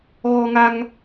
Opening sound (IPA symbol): ɣ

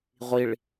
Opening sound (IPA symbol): ʁʷ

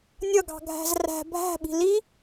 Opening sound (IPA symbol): nʲ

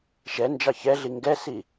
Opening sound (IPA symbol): ʃ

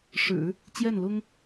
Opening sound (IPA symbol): ʂ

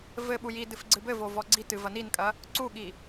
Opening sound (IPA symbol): v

